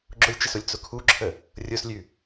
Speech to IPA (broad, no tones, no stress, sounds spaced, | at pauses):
ɡ͡ǁ ʊ lʲ t͡ʃ ə s ʊ lʲ t͡s ʊ kʰ u ǁʰ ə | rʲ ʊ s lʲ ʉ